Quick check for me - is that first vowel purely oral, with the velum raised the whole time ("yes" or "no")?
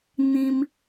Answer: no